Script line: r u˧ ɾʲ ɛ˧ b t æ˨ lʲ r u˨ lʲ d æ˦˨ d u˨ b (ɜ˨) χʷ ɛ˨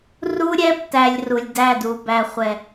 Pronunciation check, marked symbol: incorrect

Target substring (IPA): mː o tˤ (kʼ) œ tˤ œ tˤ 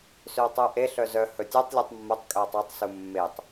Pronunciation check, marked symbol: correct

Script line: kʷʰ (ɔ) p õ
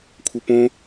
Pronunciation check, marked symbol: incorrect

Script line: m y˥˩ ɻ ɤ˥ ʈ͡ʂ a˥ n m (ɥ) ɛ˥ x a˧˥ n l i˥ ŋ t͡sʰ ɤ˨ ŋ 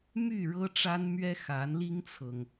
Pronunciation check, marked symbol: correct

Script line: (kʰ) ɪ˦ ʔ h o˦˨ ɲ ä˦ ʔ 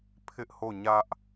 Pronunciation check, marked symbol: incorrect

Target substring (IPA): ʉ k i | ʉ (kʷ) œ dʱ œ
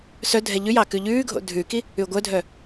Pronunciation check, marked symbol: incorrect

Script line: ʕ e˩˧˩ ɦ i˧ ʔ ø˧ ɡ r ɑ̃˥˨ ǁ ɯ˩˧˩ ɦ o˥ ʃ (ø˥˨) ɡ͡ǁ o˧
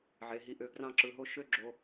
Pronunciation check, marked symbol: incorrect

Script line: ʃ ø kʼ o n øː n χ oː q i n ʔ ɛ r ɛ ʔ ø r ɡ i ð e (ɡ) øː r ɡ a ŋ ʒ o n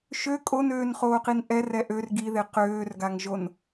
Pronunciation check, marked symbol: incorrect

